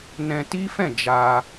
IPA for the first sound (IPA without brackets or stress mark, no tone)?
n